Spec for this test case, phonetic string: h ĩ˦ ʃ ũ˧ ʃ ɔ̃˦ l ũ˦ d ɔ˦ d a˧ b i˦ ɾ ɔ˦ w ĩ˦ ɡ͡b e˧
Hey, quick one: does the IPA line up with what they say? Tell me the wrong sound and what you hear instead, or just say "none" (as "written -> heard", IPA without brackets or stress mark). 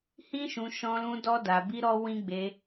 none